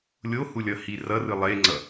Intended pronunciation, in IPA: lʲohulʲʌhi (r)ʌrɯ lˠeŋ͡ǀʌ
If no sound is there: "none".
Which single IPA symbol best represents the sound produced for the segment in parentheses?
r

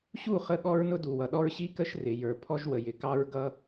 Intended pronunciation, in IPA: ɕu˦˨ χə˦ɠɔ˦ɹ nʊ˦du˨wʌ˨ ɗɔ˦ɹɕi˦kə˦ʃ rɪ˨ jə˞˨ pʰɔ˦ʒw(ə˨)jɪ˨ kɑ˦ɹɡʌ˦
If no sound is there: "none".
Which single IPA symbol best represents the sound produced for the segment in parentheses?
ə˨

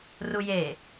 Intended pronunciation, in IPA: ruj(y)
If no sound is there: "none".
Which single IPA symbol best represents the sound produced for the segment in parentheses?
e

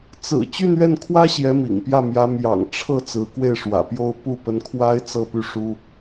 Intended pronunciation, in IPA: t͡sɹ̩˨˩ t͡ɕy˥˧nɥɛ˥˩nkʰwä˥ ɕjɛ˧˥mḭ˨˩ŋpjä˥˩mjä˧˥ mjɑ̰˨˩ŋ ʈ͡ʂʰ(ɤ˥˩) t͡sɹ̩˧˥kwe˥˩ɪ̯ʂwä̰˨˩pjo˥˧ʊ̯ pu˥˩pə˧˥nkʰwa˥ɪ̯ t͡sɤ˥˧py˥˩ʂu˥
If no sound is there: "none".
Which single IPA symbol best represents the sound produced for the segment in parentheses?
ɤ˥˩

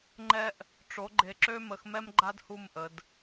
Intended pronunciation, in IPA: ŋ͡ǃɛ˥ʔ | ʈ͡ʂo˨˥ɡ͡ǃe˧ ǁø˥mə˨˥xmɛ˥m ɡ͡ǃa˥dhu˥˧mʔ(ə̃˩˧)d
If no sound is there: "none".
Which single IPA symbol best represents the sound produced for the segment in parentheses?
ə˩˧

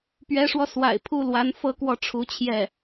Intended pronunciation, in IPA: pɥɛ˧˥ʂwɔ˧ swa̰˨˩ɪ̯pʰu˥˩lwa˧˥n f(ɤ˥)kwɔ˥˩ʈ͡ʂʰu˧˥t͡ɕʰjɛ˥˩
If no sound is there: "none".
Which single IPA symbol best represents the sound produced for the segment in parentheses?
ɤ˥˧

